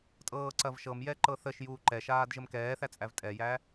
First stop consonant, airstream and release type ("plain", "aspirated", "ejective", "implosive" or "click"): ejective